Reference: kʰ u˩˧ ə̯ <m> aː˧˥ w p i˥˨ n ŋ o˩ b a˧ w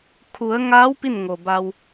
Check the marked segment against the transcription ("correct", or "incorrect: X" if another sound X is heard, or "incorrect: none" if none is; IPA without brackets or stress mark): incorrect: ŋ